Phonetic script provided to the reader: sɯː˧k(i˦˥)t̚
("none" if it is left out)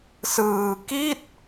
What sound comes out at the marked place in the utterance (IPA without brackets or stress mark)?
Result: i˥˩